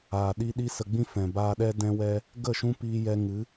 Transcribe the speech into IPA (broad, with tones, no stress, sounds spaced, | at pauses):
aː˨ ɗ i˧ ɗ i˦ s ə˧ ɡ͡b ĩ˦ f ɛ̃˨ b aː˧ ɗ ɛ˦ d ɛ̃˧ w ɛ˧ | ɡ ə˦˨ ʃ ũ˦ p iː˦ j ɛ˦ ŋ ɨ˨˦